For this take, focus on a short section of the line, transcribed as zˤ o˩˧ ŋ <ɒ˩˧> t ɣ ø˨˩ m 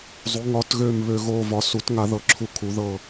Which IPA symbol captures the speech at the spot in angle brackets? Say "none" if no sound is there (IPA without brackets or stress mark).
ɒ˩˧